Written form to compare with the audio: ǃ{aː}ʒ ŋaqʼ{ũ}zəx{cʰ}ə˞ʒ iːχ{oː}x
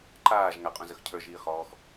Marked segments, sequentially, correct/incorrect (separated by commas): correct, correct, correct, incorrect